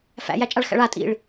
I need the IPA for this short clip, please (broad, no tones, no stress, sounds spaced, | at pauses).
f æ̰ j æ t͡ʃʼ a ɭ x æ̰ ɭ a tʼ ḭ ɭ